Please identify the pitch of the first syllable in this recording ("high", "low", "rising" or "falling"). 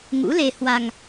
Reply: rising